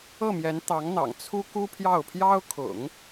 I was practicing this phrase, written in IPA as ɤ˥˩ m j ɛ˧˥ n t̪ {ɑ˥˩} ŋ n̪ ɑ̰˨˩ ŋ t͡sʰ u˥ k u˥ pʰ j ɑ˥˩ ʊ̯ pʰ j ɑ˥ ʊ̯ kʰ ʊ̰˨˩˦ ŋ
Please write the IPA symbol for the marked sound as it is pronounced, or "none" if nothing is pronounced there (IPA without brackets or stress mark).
ɑ˧˥